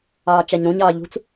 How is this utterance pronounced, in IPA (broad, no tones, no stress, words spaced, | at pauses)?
ɑːt͡ʃæɲɾũɲɑː ʎṳt͡s